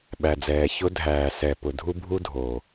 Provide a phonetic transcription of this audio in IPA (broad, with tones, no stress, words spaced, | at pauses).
ɓæ˩d͡zɛː˩ çʊ˧dʱæː˩sɛ˩ pʊ˩dʱu˧bʱu˧ dʱo˩